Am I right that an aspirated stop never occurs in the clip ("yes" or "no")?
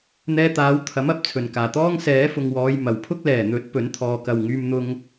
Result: no